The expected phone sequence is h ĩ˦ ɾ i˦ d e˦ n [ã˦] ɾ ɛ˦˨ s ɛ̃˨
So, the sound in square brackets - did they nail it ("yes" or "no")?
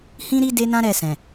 yes